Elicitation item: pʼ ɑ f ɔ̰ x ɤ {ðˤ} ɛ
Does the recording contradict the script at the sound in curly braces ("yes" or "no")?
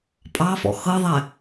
no